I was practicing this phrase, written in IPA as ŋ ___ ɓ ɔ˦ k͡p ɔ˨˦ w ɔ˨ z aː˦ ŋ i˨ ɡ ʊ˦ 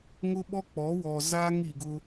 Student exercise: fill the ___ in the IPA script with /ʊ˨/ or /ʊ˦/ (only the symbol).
ʊ˦